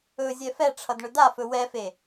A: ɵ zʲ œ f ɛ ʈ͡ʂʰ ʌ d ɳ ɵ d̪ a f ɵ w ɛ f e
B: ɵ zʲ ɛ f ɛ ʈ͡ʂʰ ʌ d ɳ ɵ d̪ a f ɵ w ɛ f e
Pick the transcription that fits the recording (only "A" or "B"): B